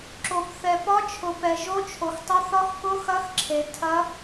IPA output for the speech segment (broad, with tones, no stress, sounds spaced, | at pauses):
ǁ o˨ p θ ɛ˨ p ɒ˦˥ t͡ʃʰ ʊ˨ p ɛ˨ ʒ o˦˥ t͡ʃʰ o˨ x tˤ ʊ˦˥ θ ɒ˦˥ x k ʊ˦˥ x ɐ˦˥ x ǁʰ e˨ tʰ ɐ˦˥